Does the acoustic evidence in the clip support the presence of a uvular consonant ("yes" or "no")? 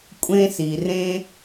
no